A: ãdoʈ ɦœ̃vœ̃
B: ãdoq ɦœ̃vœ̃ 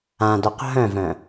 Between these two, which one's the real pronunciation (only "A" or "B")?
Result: B